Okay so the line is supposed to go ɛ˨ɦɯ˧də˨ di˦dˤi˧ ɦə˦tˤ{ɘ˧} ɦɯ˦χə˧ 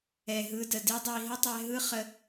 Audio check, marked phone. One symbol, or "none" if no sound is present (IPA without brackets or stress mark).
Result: ɛ˧